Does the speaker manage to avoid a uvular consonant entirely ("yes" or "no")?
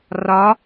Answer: yes